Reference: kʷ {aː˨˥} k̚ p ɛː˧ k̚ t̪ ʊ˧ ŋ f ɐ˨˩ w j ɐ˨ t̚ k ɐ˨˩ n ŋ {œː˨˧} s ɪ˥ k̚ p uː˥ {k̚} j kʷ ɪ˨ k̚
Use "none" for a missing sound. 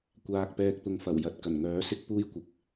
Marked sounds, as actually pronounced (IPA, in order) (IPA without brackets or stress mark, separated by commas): aː˧, œː˨˥, none